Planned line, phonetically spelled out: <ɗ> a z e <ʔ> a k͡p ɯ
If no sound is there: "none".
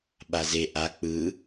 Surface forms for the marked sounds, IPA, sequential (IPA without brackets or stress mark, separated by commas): ɓ, ʔ